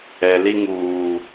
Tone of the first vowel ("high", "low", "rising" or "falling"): low